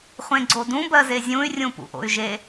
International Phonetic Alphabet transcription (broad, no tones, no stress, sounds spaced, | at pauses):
χʷ ẽ ɡ͡ǀ o d ũ b ɜ z e zʲ ũ y̯ rʲ ũ p ṵ ʔ o̰ y̯ ʒ e